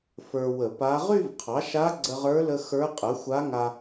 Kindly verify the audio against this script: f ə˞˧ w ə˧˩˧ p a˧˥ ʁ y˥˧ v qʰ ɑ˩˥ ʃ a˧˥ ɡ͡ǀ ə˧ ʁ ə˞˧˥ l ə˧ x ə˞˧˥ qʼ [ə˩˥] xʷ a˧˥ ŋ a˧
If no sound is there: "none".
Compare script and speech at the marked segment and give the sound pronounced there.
ə˩˥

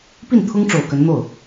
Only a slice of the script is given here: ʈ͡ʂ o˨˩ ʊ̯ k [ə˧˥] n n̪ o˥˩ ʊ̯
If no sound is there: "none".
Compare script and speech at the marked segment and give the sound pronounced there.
ə˧˥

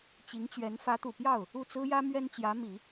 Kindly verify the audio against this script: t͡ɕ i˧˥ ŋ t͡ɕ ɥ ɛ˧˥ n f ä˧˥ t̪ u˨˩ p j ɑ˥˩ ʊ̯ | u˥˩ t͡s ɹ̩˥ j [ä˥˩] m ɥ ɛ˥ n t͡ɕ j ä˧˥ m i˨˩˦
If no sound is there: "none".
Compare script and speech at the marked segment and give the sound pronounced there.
ä˥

